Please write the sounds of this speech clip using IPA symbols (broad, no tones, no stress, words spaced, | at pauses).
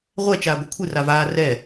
ʁʷɛ t͡ʃaːɡʷɨkʷʰɨ ravaː rɛ